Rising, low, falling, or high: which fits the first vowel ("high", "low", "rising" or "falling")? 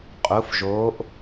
rising